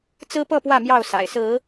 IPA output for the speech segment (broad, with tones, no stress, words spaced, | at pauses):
t͡sɹ̩˦pɤ˥˨pwä˥˨ mjɑ˥˨ʊ̯sa̰˨˩ɪ̯sɹ̩˨˦